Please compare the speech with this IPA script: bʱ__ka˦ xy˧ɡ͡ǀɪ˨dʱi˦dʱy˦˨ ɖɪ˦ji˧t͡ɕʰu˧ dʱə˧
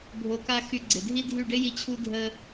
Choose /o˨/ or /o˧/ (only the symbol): o˧